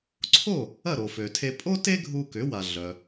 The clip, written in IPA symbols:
ǀʰ o˥˩ | ɐ˥˩ ɾ o˩ f ø˩ tʰ e˧ pʼ o˥ t e˥ ɡʱ u˧ k ʏ˩˥ w a˩ ɮ œ˩

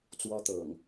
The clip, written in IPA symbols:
t͡s w ɔ˦ t̪ ɤ̰˨˩ ŋ

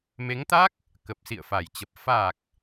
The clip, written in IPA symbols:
m e˨˦ ŋ t̪ a˦˥ k̚ | k ə˨˩ p̚ s ḭ˧˨ ə̯ f a˨˩ j t͡ɕ ə˨˩ p̚ f a˨˩ k̚

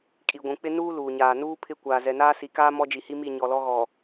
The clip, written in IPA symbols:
kʼ i˨ ɡʷ ũ˨ k͡p ɪ˦ n uː˦ l uː˨ ɲ aː˨ n uː˦ pʰ ɪ˦˨ kʷ aː˨ z ɛ˨ n aː˦ s i˨ k aː˦ m ɔ˦ d͡ʒ i˨ h i˦ m i˦˨ ɲ ɔ˨ l ɔ˦ ɣ ɔ˨

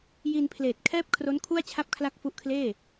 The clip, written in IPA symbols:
j i˧ n pʰ l eː˨˩ t̚ kʰ ɛː˥˩ p̚ kʰ r o˦˥ n kʰ u˥˩ a̯ t͡ɕʰ a˥˩ p̚ kʰ l a˥˩ k̚ f u˦˥ ʔ kʰ l eː˥˩

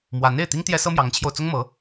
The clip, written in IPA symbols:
m w a˧˥ n e˥˩ ɪ̯ t̪ i˥ ŋ t̪ j ɛ˥ s ɤ˥ m j ɑ˧˥ ŋ t͡ɕʰ j o˧ ʊ̯ t͡s ʊ˥ ŋ m ɤ˧˥

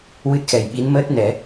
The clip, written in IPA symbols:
w ɨ˦˥ t̚ x ɛ˨˩ j ɓ i˧˥ n m əː˦˥ t̚ n ɛ˨˩˦

